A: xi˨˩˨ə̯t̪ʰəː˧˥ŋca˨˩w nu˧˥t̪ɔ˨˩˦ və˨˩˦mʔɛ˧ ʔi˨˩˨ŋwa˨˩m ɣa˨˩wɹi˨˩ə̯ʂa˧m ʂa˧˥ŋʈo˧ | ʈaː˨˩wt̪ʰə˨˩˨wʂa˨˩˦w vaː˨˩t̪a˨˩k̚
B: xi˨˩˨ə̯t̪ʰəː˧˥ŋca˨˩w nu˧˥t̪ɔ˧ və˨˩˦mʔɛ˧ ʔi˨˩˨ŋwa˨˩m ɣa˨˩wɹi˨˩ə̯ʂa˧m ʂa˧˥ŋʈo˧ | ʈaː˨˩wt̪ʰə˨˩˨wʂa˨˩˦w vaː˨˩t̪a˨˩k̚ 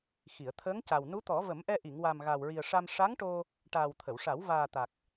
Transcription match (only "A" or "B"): A